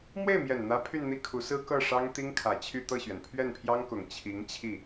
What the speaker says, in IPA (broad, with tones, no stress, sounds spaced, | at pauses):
m w e˥˩ ɪ̯ m j ɛ˨˩ n n̪ ä˧˥ pʰ y˥˧ n n̪ i˥˩ kʰ u˧˥ s ɹ̩˥ k ɤ˥˩ ʂ ɑ˥ ŋ t̪ i˥ ŋ kʰ ä˨˩ t͡ɕʰ y˥˧ t̪ ɤ˥˩ ɕ ɥ ɛ˩ n pʰ ɥ ɛ˥˩ n pʰ j ɑ˥ ŋ k ʊ˨˩ ŋ t͡ɕʰ i˧˥ ŋ t͡ɕʰ i˥˩